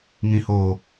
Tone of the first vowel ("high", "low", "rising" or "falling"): low